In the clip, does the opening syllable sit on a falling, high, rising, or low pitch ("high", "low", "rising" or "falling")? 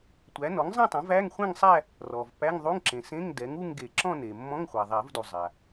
rising